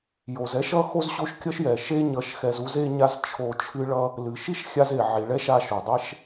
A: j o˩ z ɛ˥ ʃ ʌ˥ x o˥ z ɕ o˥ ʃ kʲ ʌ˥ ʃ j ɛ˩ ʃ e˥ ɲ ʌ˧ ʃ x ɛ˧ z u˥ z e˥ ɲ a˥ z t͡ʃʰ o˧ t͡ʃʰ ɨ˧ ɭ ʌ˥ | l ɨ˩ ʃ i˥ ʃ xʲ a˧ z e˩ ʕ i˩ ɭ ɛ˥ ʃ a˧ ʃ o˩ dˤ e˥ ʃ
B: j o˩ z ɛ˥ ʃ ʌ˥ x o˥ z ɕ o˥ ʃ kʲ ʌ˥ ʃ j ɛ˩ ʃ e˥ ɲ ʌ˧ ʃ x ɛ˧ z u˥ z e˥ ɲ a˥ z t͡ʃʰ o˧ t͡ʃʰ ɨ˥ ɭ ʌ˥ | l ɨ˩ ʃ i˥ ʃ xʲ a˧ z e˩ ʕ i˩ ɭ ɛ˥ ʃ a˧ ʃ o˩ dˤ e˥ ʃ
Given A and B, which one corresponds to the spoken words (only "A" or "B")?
B